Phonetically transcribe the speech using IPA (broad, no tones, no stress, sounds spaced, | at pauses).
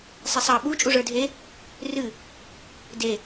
sˤ e sˤ ɑ ɓ u t͡ʃʼ u ʐ ə˞ dʱ e | r ɨ | d e